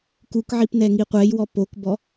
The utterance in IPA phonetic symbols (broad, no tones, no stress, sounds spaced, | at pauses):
k u k ʕ i p n ɛ ŋ i qʷ ɛ j w ɔ p o k b ɔ